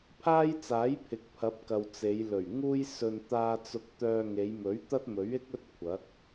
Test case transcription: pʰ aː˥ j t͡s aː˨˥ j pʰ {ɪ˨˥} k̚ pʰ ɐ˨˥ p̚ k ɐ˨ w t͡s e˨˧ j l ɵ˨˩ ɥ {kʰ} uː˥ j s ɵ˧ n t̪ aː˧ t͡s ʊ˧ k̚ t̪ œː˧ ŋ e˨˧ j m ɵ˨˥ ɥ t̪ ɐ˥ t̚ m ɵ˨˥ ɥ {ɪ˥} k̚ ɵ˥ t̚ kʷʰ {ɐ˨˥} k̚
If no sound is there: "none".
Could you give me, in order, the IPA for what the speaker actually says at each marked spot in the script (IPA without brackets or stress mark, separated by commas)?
ɪ˨˥, ŋ, ɪ˥, ɐ˨˥